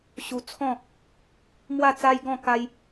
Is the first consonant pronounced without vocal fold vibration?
yes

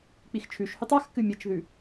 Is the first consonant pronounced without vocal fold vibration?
yes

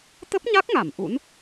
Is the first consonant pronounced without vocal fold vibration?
yes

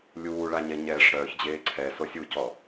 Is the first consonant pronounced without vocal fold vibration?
no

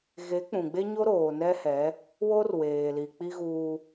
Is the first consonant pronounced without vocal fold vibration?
no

